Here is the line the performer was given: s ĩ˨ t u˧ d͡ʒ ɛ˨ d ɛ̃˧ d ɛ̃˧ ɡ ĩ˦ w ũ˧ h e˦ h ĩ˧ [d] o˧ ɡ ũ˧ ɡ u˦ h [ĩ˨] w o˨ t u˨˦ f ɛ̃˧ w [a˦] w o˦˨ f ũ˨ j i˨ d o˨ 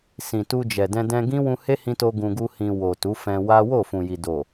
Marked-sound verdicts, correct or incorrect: incorrect: t, incorrect: ĩ˧, correct

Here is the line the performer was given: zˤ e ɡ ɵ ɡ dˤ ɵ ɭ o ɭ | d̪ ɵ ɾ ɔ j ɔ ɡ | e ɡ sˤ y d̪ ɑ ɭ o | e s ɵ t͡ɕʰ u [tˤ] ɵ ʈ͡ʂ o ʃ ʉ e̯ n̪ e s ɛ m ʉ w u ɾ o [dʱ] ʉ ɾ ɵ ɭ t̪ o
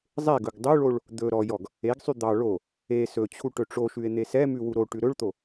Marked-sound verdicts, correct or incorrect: incorrect: ʈ, incorrect: ʈ

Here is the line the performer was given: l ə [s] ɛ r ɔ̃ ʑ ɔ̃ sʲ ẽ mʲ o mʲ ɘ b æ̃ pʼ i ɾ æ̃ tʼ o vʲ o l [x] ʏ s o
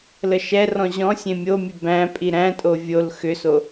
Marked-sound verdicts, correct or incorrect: incorrect: ʃ, correct

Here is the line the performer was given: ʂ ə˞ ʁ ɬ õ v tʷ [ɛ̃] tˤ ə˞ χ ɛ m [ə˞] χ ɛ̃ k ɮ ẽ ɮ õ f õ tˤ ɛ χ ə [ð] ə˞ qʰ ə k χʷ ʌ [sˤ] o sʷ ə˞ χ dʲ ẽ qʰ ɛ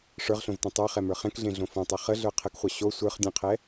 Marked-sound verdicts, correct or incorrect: incorrect: ẽ, correct, incorrect: ɮ, incorrect: ɕ

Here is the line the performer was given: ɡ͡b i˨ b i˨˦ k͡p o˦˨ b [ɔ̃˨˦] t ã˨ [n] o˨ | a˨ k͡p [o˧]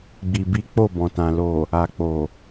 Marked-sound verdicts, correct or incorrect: incorrect: ɔ̃˨, incorrect: l, incorrect: o˨

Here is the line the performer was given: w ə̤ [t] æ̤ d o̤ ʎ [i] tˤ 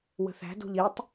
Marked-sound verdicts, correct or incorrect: incorrect: θ, correct

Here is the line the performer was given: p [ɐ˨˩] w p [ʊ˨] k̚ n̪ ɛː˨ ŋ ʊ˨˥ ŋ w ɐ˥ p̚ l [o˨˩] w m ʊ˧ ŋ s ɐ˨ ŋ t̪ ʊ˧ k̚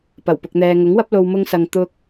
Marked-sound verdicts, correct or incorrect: correct, correct, incorrect: o˧

